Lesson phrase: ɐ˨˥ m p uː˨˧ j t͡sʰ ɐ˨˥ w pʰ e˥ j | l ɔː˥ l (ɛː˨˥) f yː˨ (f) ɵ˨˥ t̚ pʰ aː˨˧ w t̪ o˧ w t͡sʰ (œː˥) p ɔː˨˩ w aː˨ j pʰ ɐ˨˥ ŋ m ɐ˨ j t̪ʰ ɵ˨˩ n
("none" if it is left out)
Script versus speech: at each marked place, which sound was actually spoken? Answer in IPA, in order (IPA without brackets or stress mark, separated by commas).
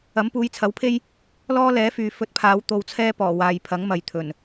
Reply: ɛː˨˥, f, ɛː˥